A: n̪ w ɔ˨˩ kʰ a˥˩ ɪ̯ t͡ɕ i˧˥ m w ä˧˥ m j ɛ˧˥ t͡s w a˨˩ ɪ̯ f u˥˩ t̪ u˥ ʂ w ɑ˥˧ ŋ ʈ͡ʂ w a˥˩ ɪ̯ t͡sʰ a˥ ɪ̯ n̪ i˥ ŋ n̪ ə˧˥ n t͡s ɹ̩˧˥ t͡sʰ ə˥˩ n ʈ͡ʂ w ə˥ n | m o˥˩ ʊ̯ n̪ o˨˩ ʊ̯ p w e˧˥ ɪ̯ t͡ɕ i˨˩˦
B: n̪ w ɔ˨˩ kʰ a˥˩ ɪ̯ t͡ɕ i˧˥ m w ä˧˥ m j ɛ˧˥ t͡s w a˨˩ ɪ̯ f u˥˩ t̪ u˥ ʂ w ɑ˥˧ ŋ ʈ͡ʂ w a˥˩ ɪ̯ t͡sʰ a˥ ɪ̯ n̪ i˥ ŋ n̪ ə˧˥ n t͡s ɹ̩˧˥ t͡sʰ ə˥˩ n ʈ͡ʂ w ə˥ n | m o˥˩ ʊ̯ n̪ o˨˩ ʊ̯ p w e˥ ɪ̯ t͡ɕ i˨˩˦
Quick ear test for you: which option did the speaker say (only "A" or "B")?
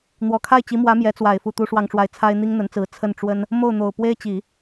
B